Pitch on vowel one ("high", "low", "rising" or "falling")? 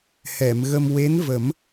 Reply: low